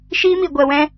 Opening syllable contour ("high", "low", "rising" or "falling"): high